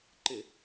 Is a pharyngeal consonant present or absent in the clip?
absent